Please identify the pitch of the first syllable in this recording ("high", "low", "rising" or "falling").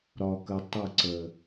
low